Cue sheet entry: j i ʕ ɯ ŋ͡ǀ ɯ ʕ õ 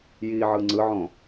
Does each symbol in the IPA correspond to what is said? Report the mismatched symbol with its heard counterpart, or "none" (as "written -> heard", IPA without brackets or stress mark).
none